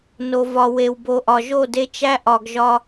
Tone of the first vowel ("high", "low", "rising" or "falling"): low